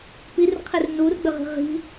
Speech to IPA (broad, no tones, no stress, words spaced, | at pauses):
pirqʰer nurɡ͡bɘʁi̤ ʁi̤